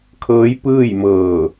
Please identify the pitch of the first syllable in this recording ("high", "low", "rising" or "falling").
rising